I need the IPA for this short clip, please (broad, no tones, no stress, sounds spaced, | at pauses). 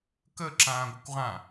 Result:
k ə ǁ ãː ɡʷ ə kʷ ʁ ã